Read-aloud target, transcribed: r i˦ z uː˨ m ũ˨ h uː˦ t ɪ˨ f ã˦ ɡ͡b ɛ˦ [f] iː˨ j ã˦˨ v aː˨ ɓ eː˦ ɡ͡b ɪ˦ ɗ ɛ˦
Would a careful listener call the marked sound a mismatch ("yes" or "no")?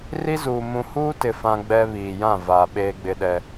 yes